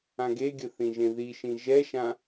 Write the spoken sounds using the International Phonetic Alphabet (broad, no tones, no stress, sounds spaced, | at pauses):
ã ɡ e ɡʲ ə θ ĩ ʒ ẽ ð i ʃ ĩ ʒ ɛ ʃ ã